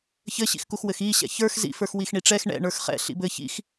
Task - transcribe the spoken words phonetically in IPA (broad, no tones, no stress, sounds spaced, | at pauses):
ç ɘ ɕ ḭ x k u x w ɘ x i ɕ ɛ̰ ç ə˞ x z ḭ f ə˞ x w i x ɳ i ʈ͡ʂ ɛ x ɳ ɛ̰ ɳ ə˞ x χ ɛ̰ ɬ ḭ b ɘ ç ḭ x